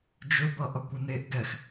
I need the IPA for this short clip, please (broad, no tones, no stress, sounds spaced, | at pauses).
d͡ʒ ɵ b ʌ ʔ ʌ kʷ ə n e ʔ ɡ ɛ x